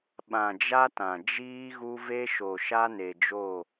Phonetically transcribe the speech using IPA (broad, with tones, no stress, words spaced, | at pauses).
ɓã˨d͡ʒa˦tã˨ d͡ʒiː˦ɣu˦ve˦ ʃo˨ʃa˦ ne˨d͡ʒo˦˨